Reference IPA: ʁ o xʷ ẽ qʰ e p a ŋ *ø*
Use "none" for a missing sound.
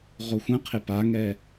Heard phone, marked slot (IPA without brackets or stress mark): ɛ